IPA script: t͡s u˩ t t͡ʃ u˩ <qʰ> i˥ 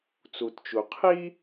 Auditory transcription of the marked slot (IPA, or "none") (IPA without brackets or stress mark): qʰ